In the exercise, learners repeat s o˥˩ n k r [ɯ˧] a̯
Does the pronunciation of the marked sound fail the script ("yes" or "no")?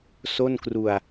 yes